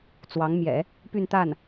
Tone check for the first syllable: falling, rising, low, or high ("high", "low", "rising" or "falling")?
rising